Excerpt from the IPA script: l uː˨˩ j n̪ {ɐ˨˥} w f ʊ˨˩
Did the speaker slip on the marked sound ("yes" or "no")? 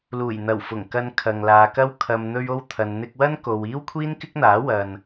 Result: yes